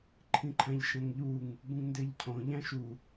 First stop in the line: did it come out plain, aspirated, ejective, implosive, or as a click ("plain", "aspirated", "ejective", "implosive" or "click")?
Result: click